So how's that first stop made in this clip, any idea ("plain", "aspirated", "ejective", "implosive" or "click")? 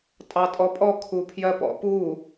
ejective